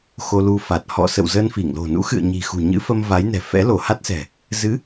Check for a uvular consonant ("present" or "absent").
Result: absent